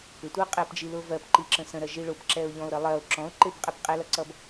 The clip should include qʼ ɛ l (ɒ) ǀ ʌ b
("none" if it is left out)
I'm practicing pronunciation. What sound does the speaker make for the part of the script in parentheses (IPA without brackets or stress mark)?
ʌ